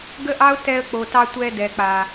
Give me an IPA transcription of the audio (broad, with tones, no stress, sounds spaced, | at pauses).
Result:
ɡ ə˦ ʔ ɑ˦ ʊ̯ t ɛ˧ ə̯ k͡p o˨ t ɑ˧ tʷ ɛ˧ d ɛ˨ k͡p a˨